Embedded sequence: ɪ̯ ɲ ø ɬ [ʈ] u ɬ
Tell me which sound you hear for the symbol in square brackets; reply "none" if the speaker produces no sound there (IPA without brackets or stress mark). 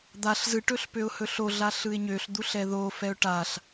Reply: d̪